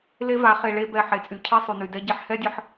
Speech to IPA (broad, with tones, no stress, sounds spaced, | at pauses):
l e˦ v a˨˦ χ e˨ ɭ e˧ b ɛ˨ ħ e˨ t͡sʼ y˨ cʰ e˦ sˤ y˨ n y˨ d ɛ˧ ɟ e˧ ħ h ɛ˦ dʲ ə˧ ħ